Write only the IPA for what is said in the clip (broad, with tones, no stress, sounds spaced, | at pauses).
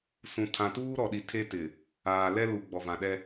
s ũ˨ tʰ ã˨ t uː˦ ɾ ɔ˨ ɗ i˨ tʰ e˦ t ɪ˨ | aː˨ l ɛ˦ l u˨ ɡ͡b ɔ˨ v ã˨ ɗ ɛ˦